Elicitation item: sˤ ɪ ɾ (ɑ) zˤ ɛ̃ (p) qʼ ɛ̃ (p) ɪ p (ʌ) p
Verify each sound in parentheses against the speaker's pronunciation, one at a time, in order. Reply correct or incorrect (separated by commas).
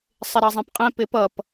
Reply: correct, correct, correct, correct